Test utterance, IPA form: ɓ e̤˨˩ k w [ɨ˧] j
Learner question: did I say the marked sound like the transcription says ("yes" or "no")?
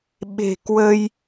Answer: no